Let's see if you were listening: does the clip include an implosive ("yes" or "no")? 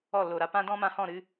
no